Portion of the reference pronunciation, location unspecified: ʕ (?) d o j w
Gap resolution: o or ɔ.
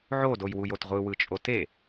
o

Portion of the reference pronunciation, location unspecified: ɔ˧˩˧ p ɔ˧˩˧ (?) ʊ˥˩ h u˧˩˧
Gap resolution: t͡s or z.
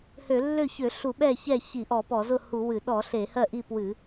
z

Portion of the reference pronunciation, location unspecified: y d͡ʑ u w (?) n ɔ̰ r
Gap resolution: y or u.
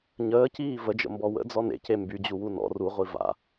u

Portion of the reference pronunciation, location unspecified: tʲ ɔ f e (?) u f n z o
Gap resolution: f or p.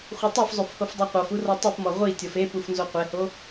p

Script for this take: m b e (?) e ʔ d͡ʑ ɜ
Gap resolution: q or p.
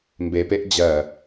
p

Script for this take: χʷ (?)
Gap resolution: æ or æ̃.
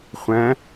æ̃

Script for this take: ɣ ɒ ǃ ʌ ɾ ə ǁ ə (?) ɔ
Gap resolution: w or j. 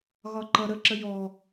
j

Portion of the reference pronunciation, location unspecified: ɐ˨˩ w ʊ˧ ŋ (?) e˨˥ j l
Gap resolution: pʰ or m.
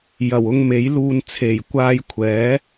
m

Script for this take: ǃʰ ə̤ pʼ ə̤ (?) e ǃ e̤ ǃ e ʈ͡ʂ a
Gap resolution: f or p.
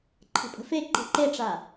f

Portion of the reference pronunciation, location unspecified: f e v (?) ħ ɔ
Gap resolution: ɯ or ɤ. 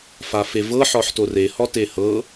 ɤ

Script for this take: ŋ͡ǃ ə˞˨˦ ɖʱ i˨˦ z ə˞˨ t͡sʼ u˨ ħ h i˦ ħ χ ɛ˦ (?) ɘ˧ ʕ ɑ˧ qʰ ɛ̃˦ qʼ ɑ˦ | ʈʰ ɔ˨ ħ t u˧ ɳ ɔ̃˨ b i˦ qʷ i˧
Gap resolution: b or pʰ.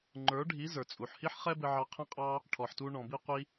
b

